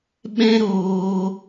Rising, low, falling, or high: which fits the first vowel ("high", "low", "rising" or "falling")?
high